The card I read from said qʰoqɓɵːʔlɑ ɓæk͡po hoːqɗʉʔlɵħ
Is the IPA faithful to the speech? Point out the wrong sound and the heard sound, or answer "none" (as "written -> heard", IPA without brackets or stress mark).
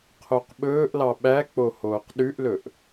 ħ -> ʔ